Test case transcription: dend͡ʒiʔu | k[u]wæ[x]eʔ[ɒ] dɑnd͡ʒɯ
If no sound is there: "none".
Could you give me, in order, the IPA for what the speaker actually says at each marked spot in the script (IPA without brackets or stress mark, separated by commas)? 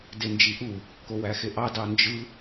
o, x, ɑ